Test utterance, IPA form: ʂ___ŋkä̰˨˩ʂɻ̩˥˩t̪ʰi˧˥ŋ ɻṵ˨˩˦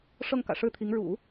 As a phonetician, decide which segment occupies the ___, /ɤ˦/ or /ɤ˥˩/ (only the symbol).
ɤ˥˩